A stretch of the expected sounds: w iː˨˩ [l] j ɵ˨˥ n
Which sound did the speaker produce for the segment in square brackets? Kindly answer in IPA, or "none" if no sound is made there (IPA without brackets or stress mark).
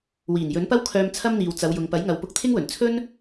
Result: n